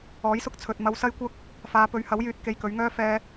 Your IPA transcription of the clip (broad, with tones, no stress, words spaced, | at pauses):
ɔː˨˥jsʊ˧k̚t͡sʰɵ˨t̚ mɐ˧wsɐ˥jkʷɐ˥k̚ | faː˨˧pɵ˨˧ɥhɐ˨˥wjyː˨t̚ ke˧jkɵ˨˥ɥŋœː˥ fɛː˧